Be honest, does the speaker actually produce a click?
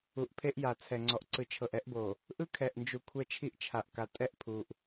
yes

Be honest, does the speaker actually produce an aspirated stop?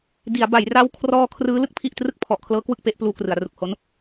yes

